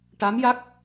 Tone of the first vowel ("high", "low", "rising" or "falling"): rising